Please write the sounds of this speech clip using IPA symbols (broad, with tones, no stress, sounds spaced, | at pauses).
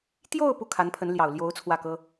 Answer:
t̪ j o˥˧ ʊ̯ p u˥˩ kʰ a˧˥ n pʰ ə˧˥ n l j ɑ˨˩ ʊ̯ l j o˧˥ ʊ̯ t͡sʰ w ä˥˩ k ɤ˥